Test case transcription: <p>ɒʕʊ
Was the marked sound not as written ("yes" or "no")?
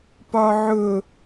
no